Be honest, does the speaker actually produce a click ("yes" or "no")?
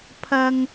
no